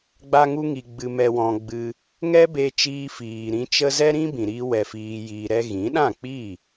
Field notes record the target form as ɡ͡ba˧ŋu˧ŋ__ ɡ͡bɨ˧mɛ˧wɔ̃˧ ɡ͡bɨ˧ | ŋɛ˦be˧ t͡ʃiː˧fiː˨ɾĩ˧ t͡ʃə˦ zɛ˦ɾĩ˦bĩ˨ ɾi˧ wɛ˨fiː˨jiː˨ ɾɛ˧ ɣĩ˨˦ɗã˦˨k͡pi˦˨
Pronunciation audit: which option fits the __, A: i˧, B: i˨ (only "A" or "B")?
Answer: B